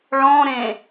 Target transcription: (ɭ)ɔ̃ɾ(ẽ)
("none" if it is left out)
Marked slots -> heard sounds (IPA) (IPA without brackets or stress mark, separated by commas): ɭ, ẽ